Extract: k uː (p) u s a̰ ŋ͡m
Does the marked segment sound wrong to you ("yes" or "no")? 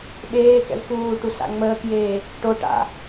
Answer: yes